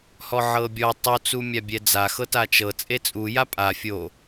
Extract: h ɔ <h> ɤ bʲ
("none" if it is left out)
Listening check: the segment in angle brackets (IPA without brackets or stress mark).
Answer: ʕ